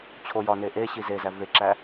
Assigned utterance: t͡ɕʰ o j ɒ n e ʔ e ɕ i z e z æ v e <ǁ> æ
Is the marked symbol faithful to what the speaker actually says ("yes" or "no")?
yes